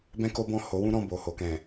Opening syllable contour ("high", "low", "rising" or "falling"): high